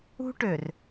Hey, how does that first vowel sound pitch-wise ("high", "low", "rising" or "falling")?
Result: high